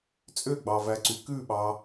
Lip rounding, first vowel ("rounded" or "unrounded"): rounded